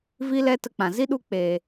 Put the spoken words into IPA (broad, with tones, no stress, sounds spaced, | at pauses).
v i˦ l ɛ˦ t ə˧ k͡p ã˨ z i˦ ɗ u˧ k͡p e˨